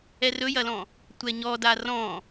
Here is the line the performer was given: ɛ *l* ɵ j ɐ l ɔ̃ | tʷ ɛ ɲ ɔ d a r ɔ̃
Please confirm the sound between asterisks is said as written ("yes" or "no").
no